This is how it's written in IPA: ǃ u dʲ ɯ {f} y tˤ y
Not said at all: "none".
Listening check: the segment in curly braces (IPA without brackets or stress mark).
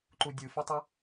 f